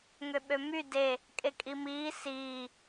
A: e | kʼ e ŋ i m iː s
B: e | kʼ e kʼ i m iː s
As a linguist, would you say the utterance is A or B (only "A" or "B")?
B